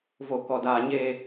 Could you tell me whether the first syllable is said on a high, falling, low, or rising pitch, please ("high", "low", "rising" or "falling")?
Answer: low